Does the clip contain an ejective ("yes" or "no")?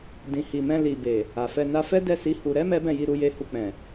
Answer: no